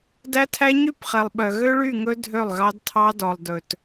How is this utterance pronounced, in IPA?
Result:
d æ˦ tʰ æ˦ ɲ y˦˨ p χ ɛ˨ lˠ ɓ œ˨ ɣ ø˦ ɭ y˦˨ ŋ ɵ˦ dʱ ø˦˨ lˠ ɣ ɑ˦ d tʰ ɑ˦ d ɔ˨ lˠ d ɵ˨ t

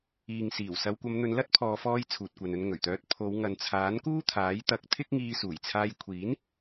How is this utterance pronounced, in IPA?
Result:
iː˨ ŋ s iː˨˩ w s ɐ˨˧ w kʷ ɐ˨˧ m n̪ ɵ˨˧ n l ɐ˥ t̚ pʰ ɔː˨˧ f ɔː˧ j t͡sʰ uː˨ t̚ kʷ ɐ˨ n ɵ˧ n ŋ ɵ˨˩ ɥ t̪ œː˧ t̚ pʰ o˨˧ w ŋ ɐ˨ n t͡sʰ aː˨˥ n k uː˥ t̪ʰ aː˨˥ j t̪ ɐ˧ k̚ t̪ʰ ɪ˥ k̚ ŋ iː˧ s uː˨˩ j t͡sʰ aː˧ j kʷʰ iː˨˥ n

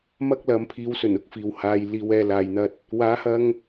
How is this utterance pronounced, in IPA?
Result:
m ɐ˥ k̚ l ɐ˨˧ m pʰ iː˨˧ w s ɵ˨˩ n ʊ˥ k̚ f iː˨ w h aː˧ j l iː˨˧ w ɛː˧ l aː˨ j n̪ ɐ˧ t̚ | w aː˨˥ h ɐ˧ ŋ

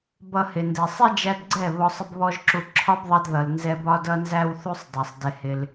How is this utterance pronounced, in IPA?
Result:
b ʌ˧ h ɪ˨ n d ɛ˨ sˤ i˦ d͡ʒ æ˧ d ɡ͡ǀ ɛ˦˨ β ɔ˧ sˤ ɪ˦ b β ɔ˦ ʒ ǁ u˧ ǁʰ ɒ˦ b ðˤ ʌ˧ d ð ʌ˨ l n z ɛ˧ b ɒ˦ d ʌ˦ n z æ˦ w θ u˦ sˤ dˤ ɛ˨ sˤ d ɪ˧ h ɪ˧ l

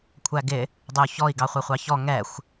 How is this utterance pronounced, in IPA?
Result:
kʷʰ æ ɡ ɪ | dˤ ɪ u̯ ç ɔ i̯ ɡ ɑ χʷ ɛ χʷ ɑ ç ɔ ŋ ɛ xʷ

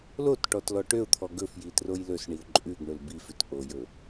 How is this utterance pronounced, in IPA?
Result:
l o t ʈ ɔ t l ɔ ʈ ø ʊ̯ t̪ʰ ɔ ɡ ɵ f j i t r o j l ɵ s ɳ i ʊ̯ ǃʼ ʉ ɡ ɳ ɵ l b i f ʉ t ʔ o j ɵ

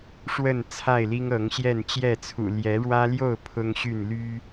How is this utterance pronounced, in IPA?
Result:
ʂ w ə˥˨ n t͡sʰ a˥˨ ɪ̯ l i˦ ŋ ɤ˨˦ ŋ ɕ j ɛ˥˨ n t͡ɕ j ɛ˥˨ t͡sʰ ṵ˨˩ l j ɛ˨˦ ɻ w ä˦ l j o˥˨ ʊ̯ pʰ ʊ˦ ŋ ɕ y˥˨ n l y˦

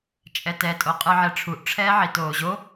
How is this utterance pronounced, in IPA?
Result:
t͡ʃʼ ɛ t ɛ tʼ o qʼ ɯ ʕ ɛ ʈ͡ʂʰ u ʔ ʈ͡ʂʰ ɛː ʕ i t oː ʑ o

